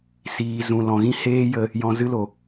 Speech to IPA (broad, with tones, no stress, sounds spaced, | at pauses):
s iː˨ z ũ˨ l ɔ̃˨ ɣ ĩ˦ h eː˦ j ə˧ | j ɔ̃˧ z ɨ˦ l o˨